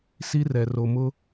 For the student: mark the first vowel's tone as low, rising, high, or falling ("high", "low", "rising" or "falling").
high